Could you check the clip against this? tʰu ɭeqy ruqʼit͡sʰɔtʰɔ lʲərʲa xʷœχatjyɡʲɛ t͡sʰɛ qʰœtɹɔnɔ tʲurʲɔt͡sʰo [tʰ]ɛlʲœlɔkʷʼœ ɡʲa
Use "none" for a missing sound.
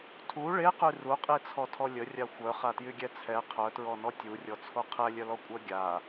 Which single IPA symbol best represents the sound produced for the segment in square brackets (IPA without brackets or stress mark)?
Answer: qʰ